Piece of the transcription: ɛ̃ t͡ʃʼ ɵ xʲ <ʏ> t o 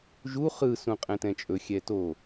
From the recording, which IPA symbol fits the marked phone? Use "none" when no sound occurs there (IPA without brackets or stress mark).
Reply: ɛ